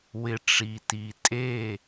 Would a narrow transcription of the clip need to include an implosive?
no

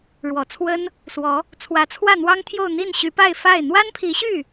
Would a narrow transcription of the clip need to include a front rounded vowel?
yes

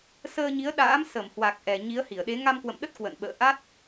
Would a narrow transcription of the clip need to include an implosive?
yes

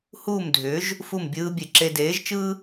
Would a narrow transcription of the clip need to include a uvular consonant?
no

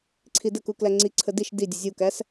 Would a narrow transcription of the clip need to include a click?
yes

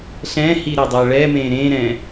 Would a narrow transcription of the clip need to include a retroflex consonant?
yes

